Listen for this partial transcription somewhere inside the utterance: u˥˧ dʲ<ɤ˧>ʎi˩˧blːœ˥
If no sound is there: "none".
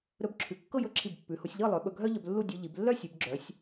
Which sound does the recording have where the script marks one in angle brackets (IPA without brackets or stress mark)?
ɤ˧